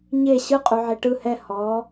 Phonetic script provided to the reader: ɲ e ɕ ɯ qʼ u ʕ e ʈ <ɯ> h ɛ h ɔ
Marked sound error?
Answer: no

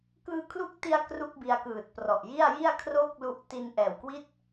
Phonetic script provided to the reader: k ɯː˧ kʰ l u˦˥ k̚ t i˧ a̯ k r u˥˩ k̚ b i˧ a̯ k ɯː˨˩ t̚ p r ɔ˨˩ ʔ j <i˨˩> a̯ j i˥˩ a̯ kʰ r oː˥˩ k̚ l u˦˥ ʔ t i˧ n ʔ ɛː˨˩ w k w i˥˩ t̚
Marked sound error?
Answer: yes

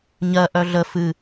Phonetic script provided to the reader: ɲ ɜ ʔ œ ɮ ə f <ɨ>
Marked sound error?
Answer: no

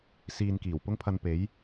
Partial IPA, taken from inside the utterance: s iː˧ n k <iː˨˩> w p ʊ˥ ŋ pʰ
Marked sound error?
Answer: no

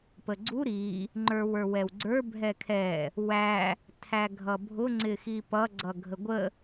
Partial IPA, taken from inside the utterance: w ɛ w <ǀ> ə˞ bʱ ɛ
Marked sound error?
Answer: yes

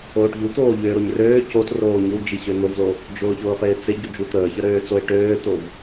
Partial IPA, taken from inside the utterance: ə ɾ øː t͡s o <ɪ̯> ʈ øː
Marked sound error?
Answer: no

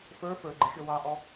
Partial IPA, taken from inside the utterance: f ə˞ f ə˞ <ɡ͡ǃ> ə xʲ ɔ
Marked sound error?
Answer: no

